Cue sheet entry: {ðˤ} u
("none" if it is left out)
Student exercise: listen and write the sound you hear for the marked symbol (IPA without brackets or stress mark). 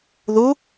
ð